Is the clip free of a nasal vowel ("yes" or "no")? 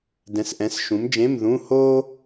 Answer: no